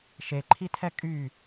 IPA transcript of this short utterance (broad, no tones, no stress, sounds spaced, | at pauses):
ʃ e ǃʰ i tʰ ɛ kʼ y